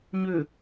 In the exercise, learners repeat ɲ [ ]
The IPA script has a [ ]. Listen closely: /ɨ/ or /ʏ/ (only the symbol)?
ʏ